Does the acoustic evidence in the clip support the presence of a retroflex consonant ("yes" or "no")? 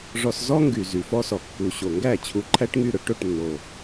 yes